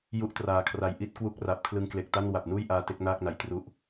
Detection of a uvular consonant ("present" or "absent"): absent